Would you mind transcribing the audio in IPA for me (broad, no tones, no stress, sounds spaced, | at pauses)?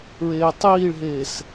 ɹ eː tˤ iː ɭ ɦ eː s